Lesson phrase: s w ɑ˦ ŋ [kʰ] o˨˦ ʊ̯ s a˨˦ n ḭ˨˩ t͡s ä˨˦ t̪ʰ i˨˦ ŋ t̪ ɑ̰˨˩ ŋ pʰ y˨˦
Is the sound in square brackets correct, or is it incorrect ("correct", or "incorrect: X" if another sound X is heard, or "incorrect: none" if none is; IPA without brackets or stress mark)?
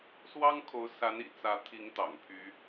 correct